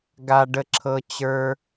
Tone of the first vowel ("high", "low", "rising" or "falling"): high